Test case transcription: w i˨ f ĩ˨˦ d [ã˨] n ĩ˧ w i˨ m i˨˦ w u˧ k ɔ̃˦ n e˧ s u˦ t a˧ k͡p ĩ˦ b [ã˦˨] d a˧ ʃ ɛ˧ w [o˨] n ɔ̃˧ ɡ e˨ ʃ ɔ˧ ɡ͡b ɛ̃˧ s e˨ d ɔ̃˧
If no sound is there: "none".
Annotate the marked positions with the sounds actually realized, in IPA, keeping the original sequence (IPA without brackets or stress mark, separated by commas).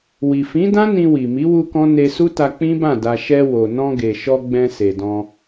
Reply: ã˦, ã˦˨, o˨